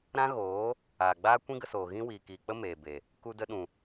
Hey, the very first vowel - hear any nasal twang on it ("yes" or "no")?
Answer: yes